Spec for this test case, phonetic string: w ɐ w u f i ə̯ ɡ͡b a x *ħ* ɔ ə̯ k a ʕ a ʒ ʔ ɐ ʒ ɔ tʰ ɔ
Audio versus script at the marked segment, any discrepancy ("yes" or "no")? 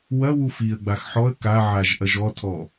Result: no